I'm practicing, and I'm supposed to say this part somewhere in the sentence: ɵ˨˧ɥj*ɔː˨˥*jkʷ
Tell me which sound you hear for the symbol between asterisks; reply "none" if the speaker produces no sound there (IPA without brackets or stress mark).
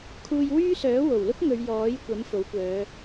ɔː˨˥